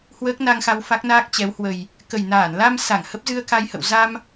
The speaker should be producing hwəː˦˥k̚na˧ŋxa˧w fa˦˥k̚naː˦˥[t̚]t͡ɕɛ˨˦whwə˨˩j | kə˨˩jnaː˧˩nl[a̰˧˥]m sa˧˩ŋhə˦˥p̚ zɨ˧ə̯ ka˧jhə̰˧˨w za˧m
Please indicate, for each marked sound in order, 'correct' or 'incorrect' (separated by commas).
incorrect, incorrect